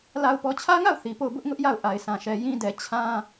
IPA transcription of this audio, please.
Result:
la˨ʊ̯pɔ˨t͡ɕʰä˦ŋa˦˨ʊ̯ θi˨po˦˨ʊ̯ bʊ˦ʔŋʊ˦ʔja˦˨ʊ̯ ʔa˨ɪ̯sʰã˨ʃɛ˨ jĩ˦dɛ˨ t͡ɕʰã˦

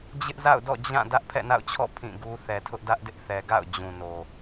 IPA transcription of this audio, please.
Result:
d͡ʑɪ˦ʔza̰˦˨ʊ̯dɔ̰˦˨ d͡ʑã˦˨ dä˦ʔpʰɛ̰˦˨na̰˦˨ʊ̯t͡ɕʰɔ̰˦˨ pʰĩ˦˨ɡu˦ θɛ˨tʰʊ˦ʔdä˦ʔdɪ˦ʔ θɛ˨ɡa̰˦˨ʊ̯ d͡ʑũ˨no˨

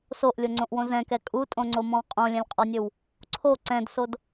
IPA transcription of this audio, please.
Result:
soʔlʲoŋ͡ǀõʔwõ zɛ̃kɛ kʼutʼõŋ͡ǀomɔ̃w qʼõlʲɛ̃lʲqʼɔnʲɵw | ǀʰo ǀɛ̃dsod

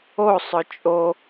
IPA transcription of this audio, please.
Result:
o sˤœt͡ʃʼo

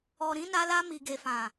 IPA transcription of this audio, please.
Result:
ɔ˨ɾĩ˨˦na˧la˧ mi˨ɡe˨fã˨

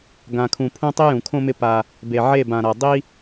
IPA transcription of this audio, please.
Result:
ɡã˨kʰũ˨pʰũ˦ tˤi˦jũ˨kʰõ˦mɪ˦ pa˦ | be˨ʕe˦˨bã˨ɾa˨ dˤi˦

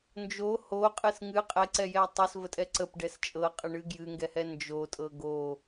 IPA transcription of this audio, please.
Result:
nd͡ʒo hoqʼɨs ŋɨ qʼɛǀɛjɛ tˤɤsvətʼɛ ǀəpɖɛs t͡ʃʼɤqʼəɳɨ ɡjɨŋɡɛhɛ nd͡ʒotʼɤ ɡo

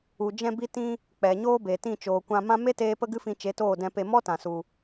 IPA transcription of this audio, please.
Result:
u˨d͡ʒɛ̃˧bi˧ tĩ˦ | k͡pɛ˨ɲoː˦ be˨tĩ˦˨ t͡ʃoː˨kʷã˧mã˦ me˦teː˧ pə˦ɡɨ˦fĩ˧ t͡ʃe˨˦toː˦˨dɛ̃˧pe˧ mɔ˦tã˨su˨

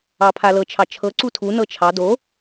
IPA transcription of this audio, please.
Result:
ɑpʰalɤ t͡ʃʰɑt͡ʃʰɤ ǀutʰu nɤt͡ʃʰɑ do

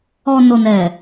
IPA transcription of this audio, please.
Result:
ɔ˨ no˨nɛ˨

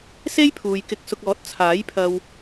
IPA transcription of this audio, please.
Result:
se˥jpʰuː˨jkɪ˧k̚sʊ˧k̚ ɔː˨˥t̚ t͡sʰaː˨˥jpʰɐ˧w

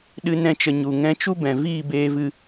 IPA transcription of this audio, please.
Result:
ɗɨ˦nɛ̃˦t͡ʃə˧ ɲu˨ŋɛ̃˧t͡ʃu˦ bɛ̃˨viː˦˨beː˧vɨ˧

